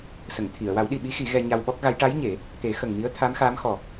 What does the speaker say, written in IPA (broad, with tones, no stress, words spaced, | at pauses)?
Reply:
sə˨˩˨ŋt̪ʰi˨˩˨ə̯ wa˨˩˦wɗi˨˩ɓi˧˥ xi˨˩˦ɣɛ˧ ɲa˧wɓɔ˦˥k̚ɣa˧˥j ʈa˧˥j ɲe˨˩˦ | t̪e˨˩˦ xə˨˩ŋmi˧˥ə̯t̪ʰa˧˥m xa˧˥mxɔ˨˩